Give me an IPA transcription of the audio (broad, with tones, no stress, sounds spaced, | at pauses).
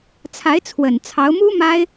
t͡sʰ a˧˥ ɪ̯ t͡sʰ w ə˨˩ n t͡sʰ ɑ˧˥ ʊ̯ m u˥ m a˥ ɪ̯